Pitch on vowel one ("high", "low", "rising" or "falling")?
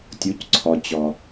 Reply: rising